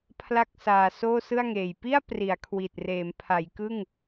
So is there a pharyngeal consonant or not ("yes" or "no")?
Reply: no